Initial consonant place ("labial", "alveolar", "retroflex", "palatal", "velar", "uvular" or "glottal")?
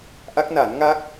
glottal